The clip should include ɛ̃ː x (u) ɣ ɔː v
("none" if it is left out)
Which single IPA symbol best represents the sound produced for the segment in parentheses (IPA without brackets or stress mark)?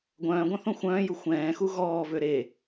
u